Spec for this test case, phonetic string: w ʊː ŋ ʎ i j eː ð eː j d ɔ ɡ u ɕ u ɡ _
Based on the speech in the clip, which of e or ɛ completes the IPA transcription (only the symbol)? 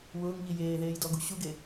e